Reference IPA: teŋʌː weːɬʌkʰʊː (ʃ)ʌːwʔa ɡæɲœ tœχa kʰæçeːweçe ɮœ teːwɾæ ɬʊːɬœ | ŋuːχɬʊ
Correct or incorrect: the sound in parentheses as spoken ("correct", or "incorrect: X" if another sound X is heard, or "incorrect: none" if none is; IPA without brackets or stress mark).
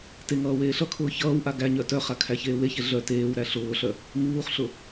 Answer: incorrect: ç